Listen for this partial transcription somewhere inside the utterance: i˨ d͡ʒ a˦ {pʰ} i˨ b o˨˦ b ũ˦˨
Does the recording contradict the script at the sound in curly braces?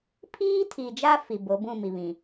yes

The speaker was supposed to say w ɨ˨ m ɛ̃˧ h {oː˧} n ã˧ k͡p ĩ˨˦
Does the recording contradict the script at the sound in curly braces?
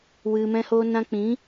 no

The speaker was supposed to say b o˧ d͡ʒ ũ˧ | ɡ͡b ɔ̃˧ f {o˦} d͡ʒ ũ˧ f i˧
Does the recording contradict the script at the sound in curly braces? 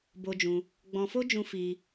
no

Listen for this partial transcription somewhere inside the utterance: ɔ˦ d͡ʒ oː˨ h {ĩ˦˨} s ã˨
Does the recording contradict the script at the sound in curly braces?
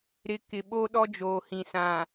yes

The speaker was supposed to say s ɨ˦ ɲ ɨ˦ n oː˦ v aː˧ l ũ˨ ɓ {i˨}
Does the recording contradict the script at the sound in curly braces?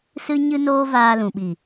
no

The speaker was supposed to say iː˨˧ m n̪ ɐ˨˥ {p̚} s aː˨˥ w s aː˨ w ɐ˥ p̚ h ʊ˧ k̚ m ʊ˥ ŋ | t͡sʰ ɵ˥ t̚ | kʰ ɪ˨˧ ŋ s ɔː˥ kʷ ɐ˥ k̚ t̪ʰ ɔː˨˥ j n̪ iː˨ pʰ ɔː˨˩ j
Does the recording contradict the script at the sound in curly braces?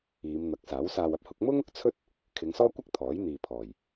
yes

